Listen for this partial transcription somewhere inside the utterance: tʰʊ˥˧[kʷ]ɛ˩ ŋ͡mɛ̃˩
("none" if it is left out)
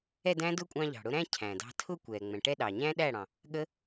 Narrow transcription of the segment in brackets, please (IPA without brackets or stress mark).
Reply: kʷ